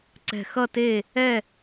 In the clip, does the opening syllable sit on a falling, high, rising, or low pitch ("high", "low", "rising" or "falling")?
falling